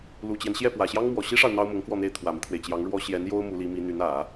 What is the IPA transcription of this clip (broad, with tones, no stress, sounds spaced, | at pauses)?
l u˨˩ t͡ɕ j ɛ˦ n ɕ j ɛ˥˩ p w ä˨˩ ɕ j ɑ˥ ŋ m w ɔ˨˩ ɕ i˥ ʂ ɑ˨ ʊ̯ n̪ ɑ˥ ʊ̯ m ʊ˧˥ ŋ k w ɔ˥˧ n̪ e˥˩ ɪ̯ t̪ʰ w ä˨˩ m i˦ t̪ʰ w e˩ ɪ̯ t͡ɕ j ɑ˧˥ ŋ ɻ w ɔ˥ ɕ j ɛ˧˥ n j o˥ ʊ̯ m u˧˥ l i˧˥ m i˧˥ n̪ y˧˥ n ä˨˩˦